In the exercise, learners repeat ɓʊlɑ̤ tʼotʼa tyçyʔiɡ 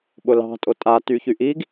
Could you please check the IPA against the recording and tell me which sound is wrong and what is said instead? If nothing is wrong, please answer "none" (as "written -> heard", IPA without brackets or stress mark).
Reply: none